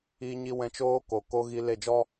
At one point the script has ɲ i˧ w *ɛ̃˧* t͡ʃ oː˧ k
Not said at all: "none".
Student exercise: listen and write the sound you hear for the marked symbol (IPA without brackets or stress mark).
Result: ɛ̃˧